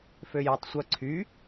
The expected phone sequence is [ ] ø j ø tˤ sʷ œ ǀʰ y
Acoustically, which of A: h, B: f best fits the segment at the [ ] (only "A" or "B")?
B